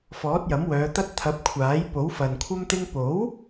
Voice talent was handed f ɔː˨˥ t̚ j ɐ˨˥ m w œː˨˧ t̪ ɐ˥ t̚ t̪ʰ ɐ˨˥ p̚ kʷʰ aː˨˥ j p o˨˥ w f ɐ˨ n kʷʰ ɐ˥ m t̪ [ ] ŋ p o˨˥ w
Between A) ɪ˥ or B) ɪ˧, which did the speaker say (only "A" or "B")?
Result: A